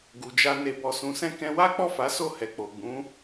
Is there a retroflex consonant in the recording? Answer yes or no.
no